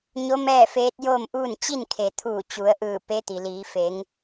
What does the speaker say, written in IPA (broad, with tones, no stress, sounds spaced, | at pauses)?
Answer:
ɲ o˧˥ m ɛː˥˨ f eː˧˥ t̚ j o˥˨ m ʔ uː˥˨ n t͡ɕ i˥˨ n kʰ e˩ t̪ʰ uː˧˩ t͡ɕ u˩˧ ə̯ ʔ ɯː˧˩ p e˧˥ t̪ i˩ l iː˩˧ f e˩˧ ŋ